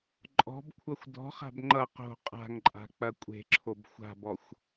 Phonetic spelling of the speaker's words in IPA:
ǃʼɔ̤bkʷʰʌxʷ dɔ̤χa̤b ŋ͡ǃʌ qo̤ qʼa̤ŋǃʼa̤ k͡pɐkʷʼe̤ǁʰob xʷa̤bɔxʷ

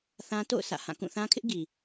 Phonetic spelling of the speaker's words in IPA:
θã˦ to̰˦˨ʊ̯ sä̰˦˨ hã˦˨ kũ˦˨θã˦kʰɪ˦ʔ ɡi˨

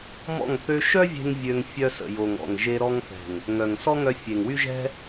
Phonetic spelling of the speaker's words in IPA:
mɔ̰˦˨ŋ θø˧ʃœ˦vʲe̤˧ŋ vʲø˧ŋ fʲœ˧sə̰˨ jo˨ŋɔ̰˨ŋʒe˧ ɾɔ˧ŋfɛ̤˨ŋ | ŋœ˨ŋsɔ˦ŋœ˧fʲe˨ŋ wy˦ʒɛ̤˦

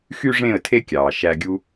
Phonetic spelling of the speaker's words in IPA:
xy˦ʐẽ˦˨ə̯tʰe˦kʲɑː˨ ʃæ˦ɡʲu˦

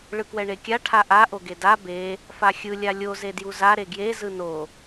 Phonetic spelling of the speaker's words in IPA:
ɭɯkwɛɳekʲa ʈʰaʔa ʔoɡeda be | faxʲɯ lʲalʲo zedjuza ɾeɡje zɯno

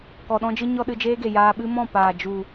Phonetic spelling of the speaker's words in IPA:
kɔ˧ɗɔ̃˦d͡ʒɨ˦ɲɔ˦ ɗɨ˧d͡ʒeː˦ɡe˨ jaː˧ɓɨ˦ mɔ̃˦˨ paː˨ d͡ʒu˨

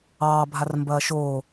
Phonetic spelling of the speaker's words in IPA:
ɑːbʱarmbɐː ʃoː

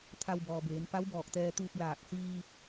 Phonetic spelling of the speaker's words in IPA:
t̪ʰa˧wbɔː˩beː˩˧n pa˧˥wbɔː˧˩k̚t̪ɛː˧t̪uː˧p̚ laː˧˩k̚ siː˧

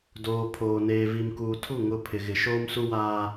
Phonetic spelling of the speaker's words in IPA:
doː˨ pʰoː˨neː˨ vi˨mkuː˨tʰu˦˨ ŋʊ˨ pʰɪ˨ɣɪ˨ ʃoː˦msu˦waː˦

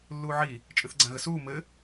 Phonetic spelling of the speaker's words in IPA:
lːuːʕi | t͡ʃʼɨθɡ͡ǀãɣəsuː mɘ

